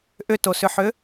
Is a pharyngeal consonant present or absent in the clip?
present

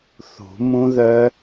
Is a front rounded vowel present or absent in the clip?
present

